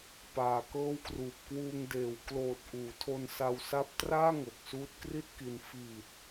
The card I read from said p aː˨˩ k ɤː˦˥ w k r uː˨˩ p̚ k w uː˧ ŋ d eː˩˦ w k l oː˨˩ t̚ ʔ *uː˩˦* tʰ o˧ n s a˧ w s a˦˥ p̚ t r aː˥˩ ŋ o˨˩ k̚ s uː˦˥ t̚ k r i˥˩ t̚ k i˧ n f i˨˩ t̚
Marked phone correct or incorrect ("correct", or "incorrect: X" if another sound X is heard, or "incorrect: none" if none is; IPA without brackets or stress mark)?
correct